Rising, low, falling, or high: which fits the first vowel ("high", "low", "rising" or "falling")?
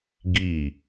falling